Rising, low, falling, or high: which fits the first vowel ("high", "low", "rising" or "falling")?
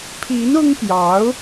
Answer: rising